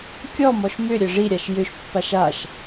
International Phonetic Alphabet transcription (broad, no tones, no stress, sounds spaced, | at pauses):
kʲ ɔ m ɔ ʃ m ʏ ɾʲ ɘ ʐ i ɾʲ a ʃ j ʏ ʃ pː a ʃ a ʃ